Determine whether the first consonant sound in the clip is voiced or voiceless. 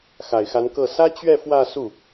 voiceless